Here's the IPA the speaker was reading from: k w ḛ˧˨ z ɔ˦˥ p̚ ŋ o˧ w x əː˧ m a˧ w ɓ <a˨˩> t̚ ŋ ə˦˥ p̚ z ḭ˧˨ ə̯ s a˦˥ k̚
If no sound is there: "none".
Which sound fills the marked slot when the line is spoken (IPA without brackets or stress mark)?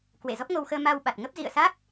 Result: a˨˩